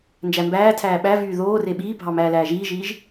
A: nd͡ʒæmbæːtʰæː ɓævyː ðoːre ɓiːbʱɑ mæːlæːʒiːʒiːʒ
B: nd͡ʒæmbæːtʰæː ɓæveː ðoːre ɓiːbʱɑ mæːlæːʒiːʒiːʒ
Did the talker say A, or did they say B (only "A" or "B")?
A